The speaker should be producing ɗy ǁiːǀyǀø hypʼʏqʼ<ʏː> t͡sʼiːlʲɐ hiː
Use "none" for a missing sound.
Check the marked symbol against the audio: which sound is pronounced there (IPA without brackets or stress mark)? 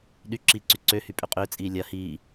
ʏː